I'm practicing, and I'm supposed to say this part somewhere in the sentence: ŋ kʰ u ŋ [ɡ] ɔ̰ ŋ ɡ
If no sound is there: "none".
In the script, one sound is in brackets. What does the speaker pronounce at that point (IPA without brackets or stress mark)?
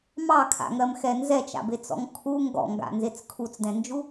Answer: ɡ